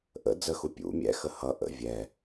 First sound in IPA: ʔ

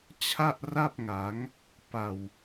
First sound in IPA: t͡ɕʰ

